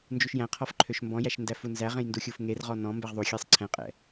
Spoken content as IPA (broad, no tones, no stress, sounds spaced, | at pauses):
n d͡ʒ u ʃ j æ̃ qʰ ɔ f ǃʰ ø ʃ m b ɔ̃ j æ ʃ n d æ f u n z æ ʁ ẽ j n d u xʲ u f ŋ e r ʁ ɔ n ɔ̃ m b ɛ ʁ ðˤ u xʲ ɛ sˤ ǀʰ ɛ̃ qʼ ɛ̰